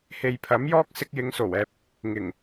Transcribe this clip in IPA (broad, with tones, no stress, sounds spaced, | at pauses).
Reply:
h e˨ j pʰ ɐ˨˥ m j ɔː˥ k̚ s ɪ˧ k̚ j ɪ˨˧ ŋ s o˨˩ w ɛː˨ p̚ | ŋ ɪ˨˩ ŋ